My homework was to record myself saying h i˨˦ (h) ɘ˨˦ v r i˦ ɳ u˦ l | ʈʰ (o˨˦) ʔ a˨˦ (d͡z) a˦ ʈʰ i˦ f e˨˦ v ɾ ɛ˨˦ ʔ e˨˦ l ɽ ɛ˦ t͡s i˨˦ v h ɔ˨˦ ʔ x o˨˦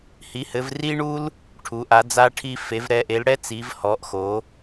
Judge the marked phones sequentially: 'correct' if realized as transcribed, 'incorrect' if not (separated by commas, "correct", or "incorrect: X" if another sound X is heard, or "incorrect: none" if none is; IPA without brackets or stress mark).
correct, incorrect: u˨˦, correct